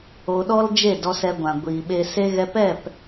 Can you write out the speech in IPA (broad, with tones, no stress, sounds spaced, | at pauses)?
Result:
o˧ ɗ ɔ˦ l d͡ʒ e˦˨ d ɔ˧ s ɛ˧ ɡʷ ã˨ ɡʷ iː˨ ɓ e˧ s e˦ ɣ ɛ˧ p ɛ˦˨ p